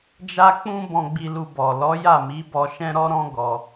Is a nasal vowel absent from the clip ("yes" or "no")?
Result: no